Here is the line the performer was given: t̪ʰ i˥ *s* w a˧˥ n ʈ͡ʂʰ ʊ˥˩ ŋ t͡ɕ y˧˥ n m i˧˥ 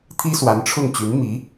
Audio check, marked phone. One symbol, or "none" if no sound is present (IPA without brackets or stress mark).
s